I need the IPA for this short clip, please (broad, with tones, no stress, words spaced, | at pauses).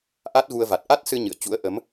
ʔa˦˥t̚ɣu˧ə̯ va˨˩t̚ʔa˦˥t̚sɨ˧ ɲɨ̰˧˨ə̯t͡ɕṵ˧˥ə̯ʔə˨˦m